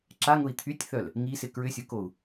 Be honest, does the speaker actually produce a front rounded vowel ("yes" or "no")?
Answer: yes